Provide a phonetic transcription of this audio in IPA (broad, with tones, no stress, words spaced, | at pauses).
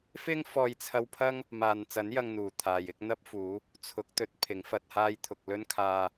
fɪ˥ŋ fɔː˧jt͡sʰɐ˧wpʰɐ˥ŋ | maː˨nt͡sɐ˨˥n jɐ˧ŋn̪uː˨˩ t̪ʰaː˨jɪ˥k̚n̪ɐ˥p̚ fuː˨˥ | t͡sʰʊ˨˥k̚t̪ɵ˧t̚ pʰɪ˨˥ŋfɐ˧t̚haː˥jt̪ʰʊ˧k̚ lɵ˥n kʰaː˧